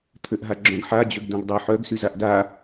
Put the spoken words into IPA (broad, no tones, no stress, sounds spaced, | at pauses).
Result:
t̪ʰ ø ʔ ɦ a ɡ͡ǁ œ̃ ɡ ħ a d͡ʑ ø ɡ d õ ɡ dˤ œ ħ œ ɡ s y z a ʔ d a